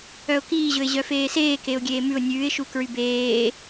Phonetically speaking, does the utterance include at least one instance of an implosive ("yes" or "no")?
no